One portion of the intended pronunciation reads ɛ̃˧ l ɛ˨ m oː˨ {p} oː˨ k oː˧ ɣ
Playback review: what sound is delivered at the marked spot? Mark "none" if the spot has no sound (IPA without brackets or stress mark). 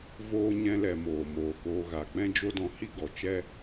m